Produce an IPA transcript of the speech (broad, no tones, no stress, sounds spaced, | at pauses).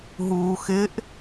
ɦ uː x ɪ ʔ